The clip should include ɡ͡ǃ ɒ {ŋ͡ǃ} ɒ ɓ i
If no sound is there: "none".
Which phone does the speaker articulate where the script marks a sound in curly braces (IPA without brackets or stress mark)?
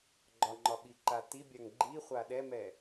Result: ŋ͡ǃ